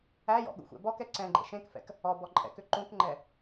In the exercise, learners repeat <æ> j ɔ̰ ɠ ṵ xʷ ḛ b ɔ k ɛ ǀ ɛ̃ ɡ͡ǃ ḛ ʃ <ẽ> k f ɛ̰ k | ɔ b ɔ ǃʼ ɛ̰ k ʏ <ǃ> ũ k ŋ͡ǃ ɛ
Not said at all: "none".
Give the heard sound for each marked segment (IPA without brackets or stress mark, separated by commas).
æ, ẽ, ǃ